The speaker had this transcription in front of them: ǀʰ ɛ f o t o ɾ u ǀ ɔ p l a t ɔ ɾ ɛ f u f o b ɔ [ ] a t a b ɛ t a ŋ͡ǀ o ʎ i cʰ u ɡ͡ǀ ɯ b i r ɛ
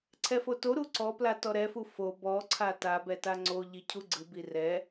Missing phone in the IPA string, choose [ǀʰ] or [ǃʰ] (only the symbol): ǀʰ